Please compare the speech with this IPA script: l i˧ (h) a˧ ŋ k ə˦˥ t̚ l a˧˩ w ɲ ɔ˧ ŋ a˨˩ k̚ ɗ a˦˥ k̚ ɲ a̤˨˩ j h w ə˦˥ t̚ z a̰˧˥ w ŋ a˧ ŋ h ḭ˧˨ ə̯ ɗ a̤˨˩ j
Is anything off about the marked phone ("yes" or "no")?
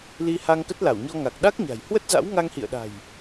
no